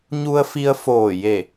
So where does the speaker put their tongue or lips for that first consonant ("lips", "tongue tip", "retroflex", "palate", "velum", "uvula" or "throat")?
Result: palate